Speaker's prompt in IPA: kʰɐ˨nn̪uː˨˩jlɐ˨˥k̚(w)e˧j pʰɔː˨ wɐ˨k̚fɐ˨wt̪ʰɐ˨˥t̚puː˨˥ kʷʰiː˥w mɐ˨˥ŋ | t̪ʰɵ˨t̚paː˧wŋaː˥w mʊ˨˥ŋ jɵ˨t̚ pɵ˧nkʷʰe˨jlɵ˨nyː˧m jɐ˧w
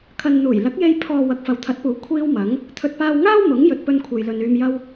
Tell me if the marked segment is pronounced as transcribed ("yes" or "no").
no